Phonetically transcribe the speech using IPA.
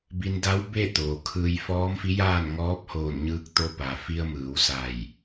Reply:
bi˧nda˧˥wbe˥˨ t̪oː˩kʰɯː˧j fɔː˧˥mfi˧˥jaː˥˨nŋɔː˧˥p̚ hoː˧˩nɲɯː˧k̚t̪o˧ pa˩fi˧ə̯mɯː˩˧w sa˧˩j

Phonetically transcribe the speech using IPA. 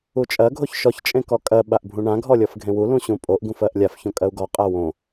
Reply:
ut͡ʃʼɜ ɡʱoçʃɔç t͡ʃʼẽkɔkʼɜ ɓaʔbʱũɳã ɡʱɔlʲɔfɡʱẽwu lũɕũpʼoʔ ɡũfɜʔlʲaf çõkʼɜu̯ɡɔ qʼawõ

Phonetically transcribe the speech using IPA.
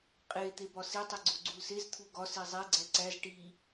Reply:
qʼe t̪ebɒsi tˤiɡ͡ǀoɡ͡ǀulsez t̪ʰuɡɒ sizˤe ɡ͡ǀæǀæz ʈi

